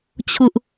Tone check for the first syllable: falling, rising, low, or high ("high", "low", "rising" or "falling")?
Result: high